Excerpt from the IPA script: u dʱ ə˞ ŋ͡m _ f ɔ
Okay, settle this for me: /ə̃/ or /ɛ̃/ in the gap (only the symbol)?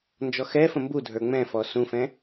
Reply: ɛ̃